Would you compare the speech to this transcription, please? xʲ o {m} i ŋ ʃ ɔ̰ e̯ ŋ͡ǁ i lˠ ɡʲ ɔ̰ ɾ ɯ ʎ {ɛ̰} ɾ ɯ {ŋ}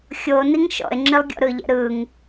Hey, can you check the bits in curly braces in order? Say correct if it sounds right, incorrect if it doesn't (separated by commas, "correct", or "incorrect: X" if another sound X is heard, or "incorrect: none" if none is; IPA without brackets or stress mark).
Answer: incorrect: n, correct, correct